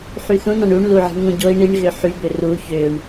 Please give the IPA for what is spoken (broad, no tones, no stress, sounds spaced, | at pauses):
ħ y θ ũ n ɑ̃ ɳ u ɳ l u ʕ i̤ ɳ ŋ ũ ɟ o i̯ ɳ i ɳ ɣ ø ħ y b ø r u ç ø ɳ